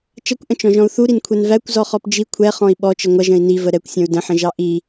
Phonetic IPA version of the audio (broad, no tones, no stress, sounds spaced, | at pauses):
t͡ʃ ʌ kʷ ʔ ə̃ t͡ʃ ɔ̃ ʒ ɔ̃ u̯ θ u ɾ i n kʷʰ ɛ n v æ kʷ z ɔ χ ɔ p d͡ʒ i kʷʰ ɛ χ ɔ̃ i̯ ɓ ɔ t͡ʃ ə ŋʷ ʌ ʒ ə̃ i̯ n i v ə ɾ ɛ kʷ sʲ ɔ̃ u̯ d ə̃ ħ ə̃ ʒ ɑ ʔ i